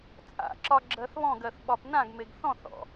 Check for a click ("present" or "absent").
present